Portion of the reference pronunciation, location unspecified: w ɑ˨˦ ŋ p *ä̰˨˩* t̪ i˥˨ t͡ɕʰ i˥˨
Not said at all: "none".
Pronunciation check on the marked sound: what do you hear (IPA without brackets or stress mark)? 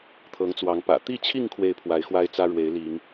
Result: ä̰˨˩